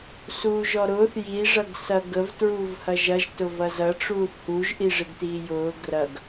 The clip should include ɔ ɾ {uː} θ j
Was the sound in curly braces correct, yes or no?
no